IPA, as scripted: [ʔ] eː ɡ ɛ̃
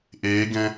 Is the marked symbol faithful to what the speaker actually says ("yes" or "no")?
yes